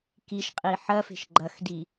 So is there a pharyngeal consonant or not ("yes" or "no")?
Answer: yes